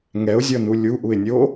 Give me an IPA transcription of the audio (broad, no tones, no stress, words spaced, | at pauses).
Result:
ŋɛʊ̯zʲɔnu lʲuʔuɪ̯nʲo